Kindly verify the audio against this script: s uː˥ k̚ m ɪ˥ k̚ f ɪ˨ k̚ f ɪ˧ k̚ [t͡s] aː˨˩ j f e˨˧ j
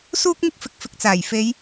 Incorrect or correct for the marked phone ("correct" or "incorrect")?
correct